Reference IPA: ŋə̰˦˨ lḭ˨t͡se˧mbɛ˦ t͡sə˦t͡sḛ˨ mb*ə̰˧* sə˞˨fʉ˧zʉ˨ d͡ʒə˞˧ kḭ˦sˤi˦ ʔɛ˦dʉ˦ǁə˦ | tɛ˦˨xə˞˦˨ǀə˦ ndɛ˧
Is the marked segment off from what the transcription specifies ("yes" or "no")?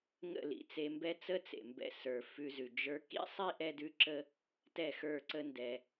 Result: yes